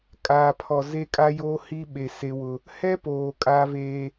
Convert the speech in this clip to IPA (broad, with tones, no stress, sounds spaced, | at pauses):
kʼ aː˨ pʰ ɔ˨ z e˦ kʼ a˦ j o˦ h i˦ ɓ e˨ s e˦ w ʊ˦ | h ɛ˦ p oː˨ kʼ a˦ v eː˦